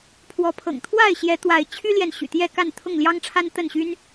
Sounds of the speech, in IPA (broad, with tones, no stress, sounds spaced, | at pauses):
pʰ w ɔ˨˦ pʰ ɤ̰˨˩ ŋ t̪ʰ w a˥˨ ɪ̯ ɕ j ɛ˨˦ t̪ w a˨˦ ɪ̯ t͡ɕʰ y˦ l j ɛ˨ n ɕ y̰˨˩ t̪ j ɛ˥˨ k a˥˨ n t̪ʰ ʊ˥˨ ŋ l j ɑ˦ ŋ ʈ͡ʂʰ a˦ n t̪ ə˥˨ n ɕ y˦ n